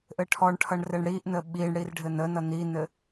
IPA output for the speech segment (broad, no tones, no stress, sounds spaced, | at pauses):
ʔ ɘ ʈʰ ɔ ɳ ʈʰ ʌ ɳ r ɘ ɳ ɽ i ʔ n ə ɓ i ɳ ɽ i r ɖʱ ɘ n ə n ʌ n i n ɘ